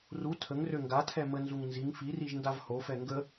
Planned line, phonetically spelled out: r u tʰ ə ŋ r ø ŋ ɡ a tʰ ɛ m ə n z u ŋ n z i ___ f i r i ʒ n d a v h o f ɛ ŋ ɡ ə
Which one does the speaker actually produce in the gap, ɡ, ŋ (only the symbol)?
ŋ